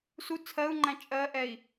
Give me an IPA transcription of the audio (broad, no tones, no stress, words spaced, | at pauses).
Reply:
su t͡sʰɜu̯ŋ͡ǃæ̃ t͡ʃʼɜʔɛi̯